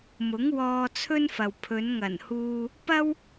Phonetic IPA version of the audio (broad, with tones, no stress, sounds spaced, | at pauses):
m ʊ˨˥ ŋ w ɔː˧ t͡sʰ ɵ˥ n f ɐ˨ w pʰ ɵ˨˧ n ŋ ɐ˨˩ n h uː˧ | p ɐ˥ w